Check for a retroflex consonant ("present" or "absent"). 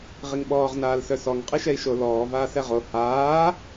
absent